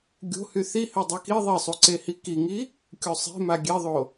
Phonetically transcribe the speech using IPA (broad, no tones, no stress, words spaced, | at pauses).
ɡʲo̤hy θi hødˤɛki ðˤisˤuǀehi kiŋi | kʲosˤe̤ma ɡʲeðˤo